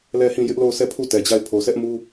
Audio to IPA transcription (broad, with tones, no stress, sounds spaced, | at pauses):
l ɛ˦˨ h ĩ˦˨ j ɪ˦ ʔ l o˦˨ ʊ̯ sʰ ɛ˦˨ pʰ u˦˨ t ɛ˨ d͡ʑ a˦˨ ɪ̯ pʰ o˨ sʰ ɛ˦ ʔ m u˦